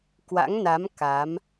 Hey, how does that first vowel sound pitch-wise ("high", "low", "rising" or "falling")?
rising